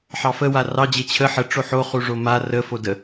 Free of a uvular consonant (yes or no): no